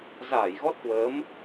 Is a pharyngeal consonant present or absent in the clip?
absent